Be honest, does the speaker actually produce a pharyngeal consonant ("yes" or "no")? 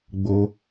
no